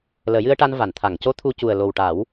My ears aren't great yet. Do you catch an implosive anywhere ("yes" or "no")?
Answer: no